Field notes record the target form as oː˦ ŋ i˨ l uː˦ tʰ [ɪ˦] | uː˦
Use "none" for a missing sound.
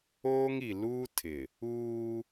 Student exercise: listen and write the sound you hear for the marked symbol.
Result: ɪ˨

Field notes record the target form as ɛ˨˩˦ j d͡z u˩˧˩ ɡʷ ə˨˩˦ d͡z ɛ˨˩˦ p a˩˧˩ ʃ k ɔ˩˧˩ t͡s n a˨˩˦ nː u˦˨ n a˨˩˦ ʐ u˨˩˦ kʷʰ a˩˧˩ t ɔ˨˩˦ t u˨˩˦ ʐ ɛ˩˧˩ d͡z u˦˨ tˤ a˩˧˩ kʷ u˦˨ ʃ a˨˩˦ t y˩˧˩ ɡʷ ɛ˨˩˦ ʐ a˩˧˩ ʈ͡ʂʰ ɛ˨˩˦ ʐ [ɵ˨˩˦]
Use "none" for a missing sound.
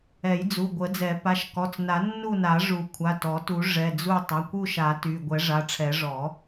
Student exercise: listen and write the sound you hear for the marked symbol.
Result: ɔ˨˩˦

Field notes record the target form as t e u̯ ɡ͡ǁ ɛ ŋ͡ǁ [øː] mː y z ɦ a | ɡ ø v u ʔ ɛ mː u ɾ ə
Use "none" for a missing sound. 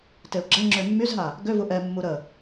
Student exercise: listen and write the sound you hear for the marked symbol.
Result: ø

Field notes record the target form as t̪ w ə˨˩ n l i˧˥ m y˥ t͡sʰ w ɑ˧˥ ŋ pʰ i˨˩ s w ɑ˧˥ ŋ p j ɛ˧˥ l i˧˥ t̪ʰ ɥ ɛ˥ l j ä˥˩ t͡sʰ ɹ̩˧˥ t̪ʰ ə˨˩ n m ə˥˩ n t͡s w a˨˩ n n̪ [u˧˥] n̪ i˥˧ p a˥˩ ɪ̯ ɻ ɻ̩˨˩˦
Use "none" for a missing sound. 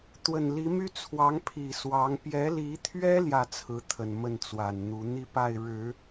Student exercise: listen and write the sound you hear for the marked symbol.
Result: u˧˥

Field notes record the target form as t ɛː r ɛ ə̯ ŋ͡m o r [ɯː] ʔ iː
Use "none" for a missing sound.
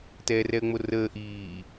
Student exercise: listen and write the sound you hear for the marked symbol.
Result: əː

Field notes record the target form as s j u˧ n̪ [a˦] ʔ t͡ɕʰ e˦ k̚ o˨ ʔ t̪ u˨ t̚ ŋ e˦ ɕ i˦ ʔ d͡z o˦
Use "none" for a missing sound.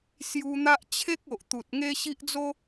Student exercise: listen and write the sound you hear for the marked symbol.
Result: a˦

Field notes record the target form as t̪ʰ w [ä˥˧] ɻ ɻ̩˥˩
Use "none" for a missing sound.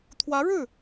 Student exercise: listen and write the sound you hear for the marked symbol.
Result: ä˧˥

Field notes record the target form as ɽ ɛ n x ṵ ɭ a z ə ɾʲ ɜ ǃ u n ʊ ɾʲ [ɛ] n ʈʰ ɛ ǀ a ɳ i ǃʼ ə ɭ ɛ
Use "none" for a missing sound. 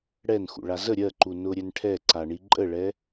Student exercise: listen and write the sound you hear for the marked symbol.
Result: ɛ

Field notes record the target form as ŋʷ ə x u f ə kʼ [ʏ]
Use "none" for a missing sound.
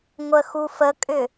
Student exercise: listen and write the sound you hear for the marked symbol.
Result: ʏ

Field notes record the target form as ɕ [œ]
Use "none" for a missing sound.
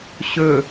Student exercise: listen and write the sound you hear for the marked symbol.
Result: ɵ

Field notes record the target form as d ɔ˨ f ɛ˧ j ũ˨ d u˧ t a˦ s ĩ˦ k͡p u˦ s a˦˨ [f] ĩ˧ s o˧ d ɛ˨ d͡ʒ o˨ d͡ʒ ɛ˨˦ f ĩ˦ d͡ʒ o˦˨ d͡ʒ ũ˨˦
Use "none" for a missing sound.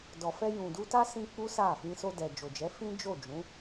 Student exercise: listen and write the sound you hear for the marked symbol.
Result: f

